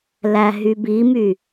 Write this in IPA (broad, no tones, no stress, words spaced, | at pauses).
læɦybimy